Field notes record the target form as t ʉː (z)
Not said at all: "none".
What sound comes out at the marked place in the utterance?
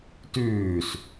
s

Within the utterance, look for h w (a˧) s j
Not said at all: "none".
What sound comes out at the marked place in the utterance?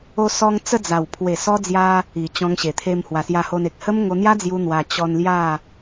a˨˩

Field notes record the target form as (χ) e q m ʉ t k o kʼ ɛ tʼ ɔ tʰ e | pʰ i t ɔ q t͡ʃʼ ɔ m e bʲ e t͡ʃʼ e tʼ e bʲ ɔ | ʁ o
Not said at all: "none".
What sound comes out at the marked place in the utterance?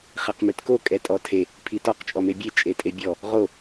χ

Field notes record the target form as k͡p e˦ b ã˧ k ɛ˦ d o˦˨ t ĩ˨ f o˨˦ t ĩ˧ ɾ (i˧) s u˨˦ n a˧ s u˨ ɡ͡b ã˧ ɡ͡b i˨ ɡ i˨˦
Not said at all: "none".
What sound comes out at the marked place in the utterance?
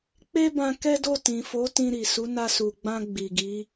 i˨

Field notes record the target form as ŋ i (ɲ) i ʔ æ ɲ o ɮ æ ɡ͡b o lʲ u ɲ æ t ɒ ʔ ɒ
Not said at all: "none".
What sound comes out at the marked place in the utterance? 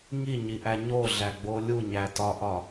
ɲ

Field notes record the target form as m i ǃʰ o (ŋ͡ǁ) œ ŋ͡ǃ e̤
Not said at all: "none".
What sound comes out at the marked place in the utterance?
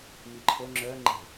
ŋ͡ǁ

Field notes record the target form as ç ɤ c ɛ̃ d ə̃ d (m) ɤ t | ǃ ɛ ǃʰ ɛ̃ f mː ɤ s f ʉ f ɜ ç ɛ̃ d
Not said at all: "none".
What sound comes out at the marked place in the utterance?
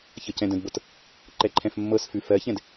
b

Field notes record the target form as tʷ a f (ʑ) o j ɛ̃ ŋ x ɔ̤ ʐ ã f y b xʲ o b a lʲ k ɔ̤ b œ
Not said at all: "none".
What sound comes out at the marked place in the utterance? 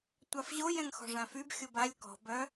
ʑ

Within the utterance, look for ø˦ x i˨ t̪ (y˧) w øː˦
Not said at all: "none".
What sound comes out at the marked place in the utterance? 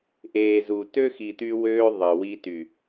y˧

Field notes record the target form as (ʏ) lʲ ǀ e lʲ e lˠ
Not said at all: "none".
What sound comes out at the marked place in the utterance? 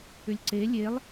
ʏ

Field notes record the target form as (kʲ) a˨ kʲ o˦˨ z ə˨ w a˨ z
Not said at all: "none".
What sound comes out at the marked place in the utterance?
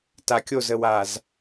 t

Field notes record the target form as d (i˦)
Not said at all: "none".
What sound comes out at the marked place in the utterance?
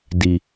i˨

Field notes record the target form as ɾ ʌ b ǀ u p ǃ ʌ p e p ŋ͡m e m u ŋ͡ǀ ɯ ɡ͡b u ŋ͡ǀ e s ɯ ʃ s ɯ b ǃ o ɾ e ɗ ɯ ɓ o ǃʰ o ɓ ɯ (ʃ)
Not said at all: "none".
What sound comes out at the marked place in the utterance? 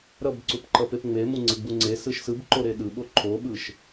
ʃ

